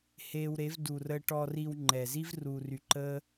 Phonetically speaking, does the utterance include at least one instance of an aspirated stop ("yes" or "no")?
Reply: no